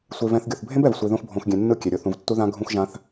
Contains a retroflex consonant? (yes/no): no